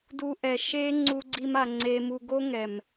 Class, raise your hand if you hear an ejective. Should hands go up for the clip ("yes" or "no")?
no